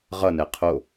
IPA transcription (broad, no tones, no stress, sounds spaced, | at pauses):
ʁ ʌ n ɛ qʰ o